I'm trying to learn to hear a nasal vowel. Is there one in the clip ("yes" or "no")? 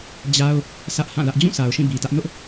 yes